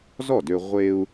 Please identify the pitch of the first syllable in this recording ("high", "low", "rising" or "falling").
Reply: falling